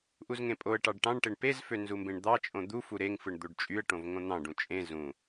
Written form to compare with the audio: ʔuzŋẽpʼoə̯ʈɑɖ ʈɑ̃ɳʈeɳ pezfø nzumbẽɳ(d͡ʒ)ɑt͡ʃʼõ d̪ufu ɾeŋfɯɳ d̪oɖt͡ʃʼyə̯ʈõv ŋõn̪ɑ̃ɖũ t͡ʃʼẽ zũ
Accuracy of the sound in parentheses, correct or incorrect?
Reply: incorrect